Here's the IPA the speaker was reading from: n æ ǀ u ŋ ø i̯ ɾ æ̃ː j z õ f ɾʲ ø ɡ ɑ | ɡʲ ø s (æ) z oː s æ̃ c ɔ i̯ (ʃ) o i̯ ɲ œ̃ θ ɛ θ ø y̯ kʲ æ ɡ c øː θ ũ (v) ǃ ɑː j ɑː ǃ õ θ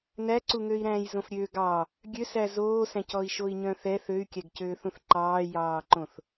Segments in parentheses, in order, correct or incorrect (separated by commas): correct, correct, incorrect